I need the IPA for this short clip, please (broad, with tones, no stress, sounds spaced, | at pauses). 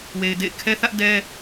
w e˨ ɪ̯ d ḛ˦˨ ɪ̯ kʰ ɛ˦ θ ä˦ ʔ d ɛ˦